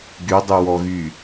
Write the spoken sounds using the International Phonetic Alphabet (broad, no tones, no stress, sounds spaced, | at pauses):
ɡ y dˤ y w ɔ ɣ y